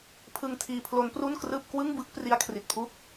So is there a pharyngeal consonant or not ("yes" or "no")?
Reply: no